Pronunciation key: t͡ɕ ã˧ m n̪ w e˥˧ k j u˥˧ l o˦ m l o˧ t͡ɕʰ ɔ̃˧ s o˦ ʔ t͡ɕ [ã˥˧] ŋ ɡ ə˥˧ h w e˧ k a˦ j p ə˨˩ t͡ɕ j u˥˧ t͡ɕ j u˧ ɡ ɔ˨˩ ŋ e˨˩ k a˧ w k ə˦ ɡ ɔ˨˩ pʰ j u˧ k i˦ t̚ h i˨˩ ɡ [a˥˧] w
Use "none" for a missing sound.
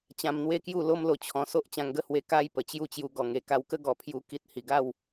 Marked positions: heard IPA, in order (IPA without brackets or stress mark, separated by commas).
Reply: ã˧, a˥˧